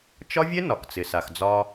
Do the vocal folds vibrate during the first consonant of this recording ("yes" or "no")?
no